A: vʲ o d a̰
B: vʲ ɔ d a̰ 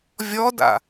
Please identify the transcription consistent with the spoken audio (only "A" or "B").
B